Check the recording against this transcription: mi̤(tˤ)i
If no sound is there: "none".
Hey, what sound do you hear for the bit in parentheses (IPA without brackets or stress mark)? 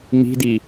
d